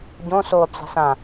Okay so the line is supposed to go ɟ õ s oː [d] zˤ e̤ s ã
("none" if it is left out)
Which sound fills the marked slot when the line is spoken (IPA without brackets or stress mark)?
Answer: b